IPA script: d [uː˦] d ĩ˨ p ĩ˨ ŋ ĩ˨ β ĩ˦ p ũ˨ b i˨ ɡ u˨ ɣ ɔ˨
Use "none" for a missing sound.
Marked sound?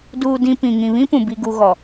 uː˨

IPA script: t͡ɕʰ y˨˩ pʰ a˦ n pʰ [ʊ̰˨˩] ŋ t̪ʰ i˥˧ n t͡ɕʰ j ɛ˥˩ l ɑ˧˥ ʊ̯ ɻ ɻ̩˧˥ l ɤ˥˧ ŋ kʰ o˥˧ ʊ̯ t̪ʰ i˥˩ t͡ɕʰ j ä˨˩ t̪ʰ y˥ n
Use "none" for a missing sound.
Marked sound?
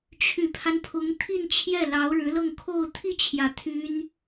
ʊ˧˥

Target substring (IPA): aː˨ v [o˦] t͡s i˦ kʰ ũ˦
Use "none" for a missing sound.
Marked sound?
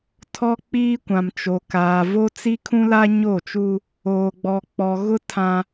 o˦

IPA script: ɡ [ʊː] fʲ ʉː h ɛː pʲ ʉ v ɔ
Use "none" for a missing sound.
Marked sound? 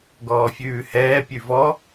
ɔː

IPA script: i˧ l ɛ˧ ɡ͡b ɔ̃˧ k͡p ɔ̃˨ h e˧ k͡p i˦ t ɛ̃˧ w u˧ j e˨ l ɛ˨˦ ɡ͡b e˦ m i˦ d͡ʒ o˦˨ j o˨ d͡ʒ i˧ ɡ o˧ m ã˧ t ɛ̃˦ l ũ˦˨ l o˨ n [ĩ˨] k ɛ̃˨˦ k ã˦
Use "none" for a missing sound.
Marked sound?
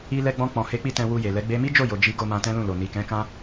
i˨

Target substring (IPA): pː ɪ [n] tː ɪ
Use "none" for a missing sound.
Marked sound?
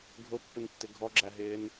n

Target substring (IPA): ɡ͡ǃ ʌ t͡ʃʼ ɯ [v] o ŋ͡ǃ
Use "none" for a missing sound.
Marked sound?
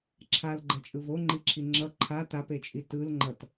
v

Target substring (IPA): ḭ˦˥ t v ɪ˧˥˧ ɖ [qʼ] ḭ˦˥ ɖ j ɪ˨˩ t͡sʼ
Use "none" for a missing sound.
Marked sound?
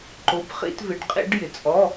qʼ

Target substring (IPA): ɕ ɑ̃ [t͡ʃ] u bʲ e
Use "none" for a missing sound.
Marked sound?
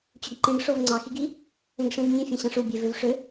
ʂ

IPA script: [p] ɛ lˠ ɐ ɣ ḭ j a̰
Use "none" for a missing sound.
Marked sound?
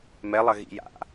m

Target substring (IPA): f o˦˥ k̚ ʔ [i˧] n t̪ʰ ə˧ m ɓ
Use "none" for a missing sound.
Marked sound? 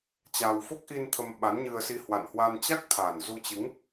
i˧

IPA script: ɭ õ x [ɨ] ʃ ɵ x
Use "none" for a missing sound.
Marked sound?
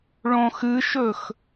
ɨ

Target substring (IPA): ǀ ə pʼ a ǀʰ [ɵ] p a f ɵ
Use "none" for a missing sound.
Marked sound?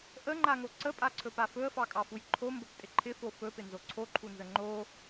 ɵ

